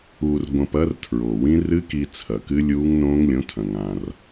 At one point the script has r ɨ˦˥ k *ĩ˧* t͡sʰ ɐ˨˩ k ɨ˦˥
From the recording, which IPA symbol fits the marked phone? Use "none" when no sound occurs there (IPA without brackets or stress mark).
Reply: i˧